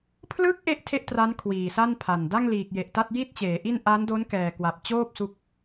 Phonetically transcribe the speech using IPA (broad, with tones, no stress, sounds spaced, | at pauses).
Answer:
pʰ l ɯ˦˥ k̚ ʔ e˥˩ ʔ tʰ e˥˩ ʔ t r a˦˥ n kʰ w iː˨˩ s a˥˩ n pʰ a˨˩ n d a˥˩ ŋ l iː˨˩ k̚ j e˨˩ ʔ t a˥˩ t̚ j i˥˩ t̚ t͡ɕ eː˩˦ ʔ i˥˩ n ʔ a˦˥ n d o˦˥ n k ɛː˨˩ k w a˨˩ p̚ t͡ɕ oː˥˩ p̚ s u˦˥ k̚